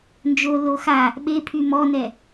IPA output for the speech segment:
nd͡ʒo loxa | ɓepʰy mɔnɛ

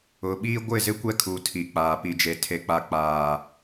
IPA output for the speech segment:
ʊ˨ɓiː˦ ɡʷɪ˦˨zɪ˦kʷɛ˦kʰuː˨ tʰi˨k͡paː˨ pi˨d͡ʒe˨ tʰe˨k͡pa˨ k͡paː˨

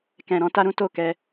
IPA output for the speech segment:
kɛ̃˨ɾɔ̃˨˦ ta˦ɾũ˦ to˦˨kɛ˧

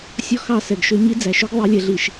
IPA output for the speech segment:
sʲɔ˦xɑ˦˨ sɛ˨ɡʃø˦ ɲi˦d͡zæ˨ʃɵ˦ɡ ðˤi˨˦lʲɛ˨ɮi˨ʃ

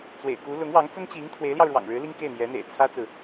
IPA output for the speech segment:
t͡swḛ˨˩ɪ̯ku˧˥ lʊ˧˥ŋwɑ˧˥ŋt͡sə˥nt͡ɕi˧˥ŋ t̪ʰwe˧˥ɪ̯ljɑ˧ʊ̯ɻwɑ̰˨˩ŋɻɻ̩˧˥ li˥ŋke˥˩ɪ̯n̪jɛ˧˥n̪ḛ˨˩ɪ̯ t͡sʰä˥t͡sɹ̩˨

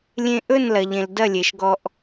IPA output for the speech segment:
lʲẽ˧ʔɵ˦˨nlɐ˨ʎẽ˨l dɐ˦˨lʲe˨ʃ ɡɔ˧ʔ

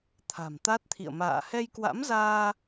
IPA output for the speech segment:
t̪ʰa̤˨˩mt̪a˦˥t̚t̪ʰḭ˧˨ə̯ ma̰ː˧˨ hɛ˧jkwa̰˧˥mzaː˧

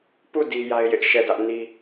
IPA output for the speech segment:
pu˦˨ di˦ja˦ɪ̯jɪ˦ʔ ʃɛ˦˨dä˦ʔni˦

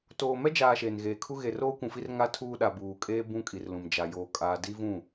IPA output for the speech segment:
toː˨mɛ˦d͡ʒaː˨ ʃeː˨nɣeː˨kʰu˦ ɣe˨ roː˦kʷũ˨fi˦r ŋa˦tʰuː˦ɗa˨ buː˨kʼeː˦ bũ˦kʼi˨rlũ˨m d͡ʒa˨joː˨kʼaː˨ di˦vũ˦˨

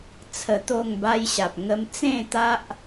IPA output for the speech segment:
t͡sʰə˧t̪o˥˧ŋba˦jɕa˨p̚ ŋə˧mt͡sẽ˥˧t̪a˦ʔ

